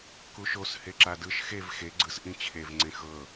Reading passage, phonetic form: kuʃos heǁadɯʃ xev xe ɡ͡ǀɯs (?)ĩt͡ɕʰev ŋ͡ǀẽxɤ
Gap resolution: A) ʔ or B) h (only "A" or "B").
A